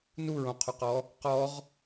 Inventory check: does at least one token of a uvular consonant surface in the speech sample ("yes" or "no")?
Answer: yes